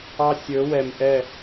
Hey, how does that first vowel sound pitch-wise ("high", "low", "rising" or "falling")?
high